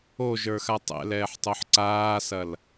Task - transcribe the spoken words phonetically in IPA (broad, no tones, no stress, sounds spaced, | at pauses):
o ʒ ə˞ x a tˤ ɛ̰ l ɛː ħ tˤ o ħ ǀ aː s ɐ l